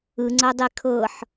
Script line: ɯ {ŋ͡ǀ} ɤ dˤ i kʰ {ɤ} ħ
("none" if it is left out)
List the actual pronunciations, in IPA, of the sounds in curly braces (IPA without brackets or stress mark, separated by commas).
ŋ͡ǀ, ɤ